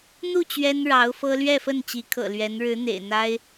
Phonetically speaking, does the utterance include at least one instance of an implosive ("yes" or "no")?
no